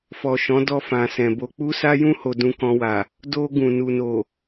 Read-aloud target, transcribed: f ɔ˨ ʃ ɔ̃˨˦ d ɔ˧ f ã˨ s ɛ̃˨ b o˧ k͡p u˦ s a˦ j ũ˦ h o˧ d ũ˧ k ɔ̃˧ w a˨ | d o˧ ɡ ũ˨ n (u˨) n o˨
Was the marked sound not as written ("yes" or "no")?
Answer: no